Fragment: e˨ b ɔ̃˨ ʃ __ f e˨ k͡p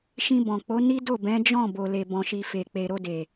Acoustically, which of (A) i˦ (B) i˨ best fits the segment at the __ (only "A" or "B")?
B